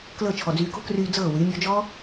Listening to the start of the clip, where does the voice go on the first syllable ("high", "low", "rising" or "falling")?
falling